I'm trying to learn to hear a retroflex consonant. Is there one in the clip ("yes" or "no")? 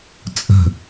no